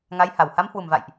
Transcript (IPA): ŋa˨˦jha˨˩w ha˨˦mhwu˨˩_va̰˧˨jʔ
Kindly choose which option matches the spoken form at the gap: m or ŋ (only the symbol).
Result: m